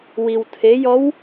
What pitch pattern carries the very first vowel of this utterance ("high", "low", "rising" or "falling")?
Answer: low